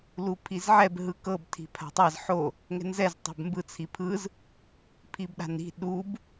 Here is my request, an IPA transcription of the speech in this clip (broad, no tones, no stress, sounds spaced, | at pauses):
l u pʰ i z ʕ ɛ b ɦ ɯ k ɤ b tʰ i̤ pʰ a̤ tˤ a z ħ o | ŋ ɛ̤ n z ɛ z tˤ a̤ b m b ɯ t͡sʰ i pʰ ɯ z | pʰ i b ɗ a̤ n i̤ ɗ u b